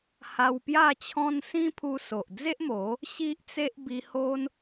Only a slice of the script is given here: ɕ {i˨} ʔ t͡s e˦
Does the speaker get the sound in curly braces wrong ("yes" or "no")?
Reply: yes